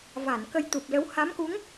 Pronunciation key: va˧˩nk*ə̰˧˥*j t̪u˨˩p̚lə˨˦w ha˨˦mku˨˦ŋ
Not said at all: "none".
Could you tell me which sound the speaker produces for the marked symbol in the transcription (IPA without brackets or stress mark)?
ə˧